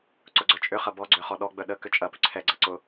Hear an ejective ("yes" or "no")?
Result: yes